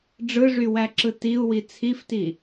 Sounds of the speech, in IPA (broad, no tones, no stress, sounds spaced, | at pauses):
ɖ͡ʐ ɯ ʐ y w æ ǁ ɯ t i u̯ w i t͡sʰ i f t i